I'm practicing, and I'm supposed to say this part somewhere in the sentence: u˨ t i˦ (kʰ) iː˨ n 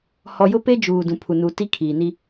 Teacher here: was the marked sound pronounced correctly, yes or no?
yes